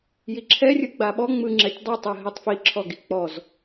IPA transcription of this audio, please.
jiǁʰɛrʲɯ ɡ͡baɓɔ ŋ͡mɯŋ͡ǁɛtʲ dˤɛtˤɯ ɦitˤfiǁʰɔɡi k͡pɔz

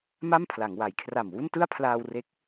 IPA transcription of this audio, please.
ma˥˩mpʰla˩˦ŋwa˩˦jkʰra˨˩m wu˥˩n tɯ˥˩a̯pʰlaː˧wre˦˥k̚

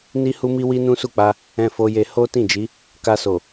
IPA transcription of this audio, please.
ni˦hu˦mi˦ wi˦nũ˦su˦˨k͡pa˧ | ɛ̃˧fo˧je˧ ho˦ tĩ˦˨d͡ʒi˨˦ | ka˧so˨

